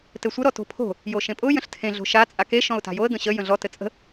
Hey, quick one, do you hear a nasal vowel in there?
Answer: yes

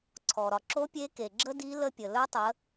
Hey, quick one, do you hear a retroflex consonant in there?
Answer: no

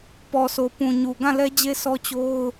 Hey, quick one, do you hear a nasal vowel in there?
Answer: yes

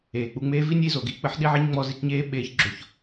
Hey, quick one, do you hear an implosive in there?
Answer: yes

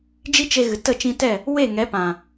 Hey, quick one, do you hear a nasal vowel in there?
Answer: yes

